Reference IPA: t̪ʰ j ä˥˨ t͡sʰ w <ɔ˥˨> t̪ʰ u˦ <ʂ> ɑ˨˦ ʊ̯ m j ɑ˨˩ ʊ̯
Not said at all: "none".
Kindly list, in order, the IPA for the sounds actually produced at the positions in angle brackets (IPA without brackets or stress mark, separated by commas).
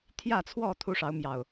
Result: ɔ˥˨, ʂ